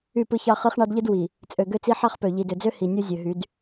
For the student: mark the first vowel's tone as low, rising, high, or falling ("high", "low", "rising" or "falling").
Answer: falling